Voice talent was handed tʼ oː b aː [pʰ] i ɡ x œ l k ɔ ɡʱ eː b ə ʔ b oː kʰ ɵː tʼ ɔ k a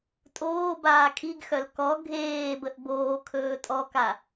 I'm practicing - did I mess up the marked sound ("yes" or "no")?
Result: yes